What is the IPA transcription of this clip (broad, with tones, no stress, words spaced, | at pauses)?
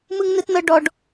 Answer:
mɯ˦ŋnɯ˦tnɤ˦ ɖɔ˦ɖ